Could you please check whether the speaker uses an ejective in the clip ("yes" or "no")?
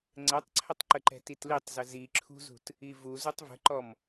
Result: no